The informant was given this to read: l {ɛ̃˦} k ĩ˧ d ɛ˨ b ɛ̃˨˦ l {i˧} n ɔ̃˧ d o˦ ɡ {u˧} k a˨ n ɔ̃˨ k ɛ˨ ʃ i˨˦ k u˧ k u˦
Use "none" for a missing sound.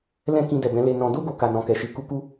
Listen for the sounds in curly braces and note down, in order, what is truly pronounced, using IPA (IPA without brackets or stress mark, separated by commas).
ɛ̃˦, e˧, o˧